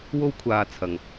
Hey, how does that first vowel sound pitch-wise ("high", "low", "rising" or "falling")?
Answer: high